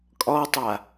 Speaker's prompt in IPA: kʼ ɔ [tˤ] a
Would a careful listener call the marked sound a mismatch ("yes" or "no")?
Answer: no